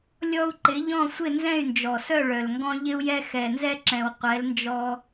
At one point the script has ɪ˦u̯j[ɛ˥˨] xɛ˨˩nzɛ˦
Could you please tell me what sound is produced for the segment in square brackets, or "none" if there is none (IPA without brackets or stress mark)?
ɛ˦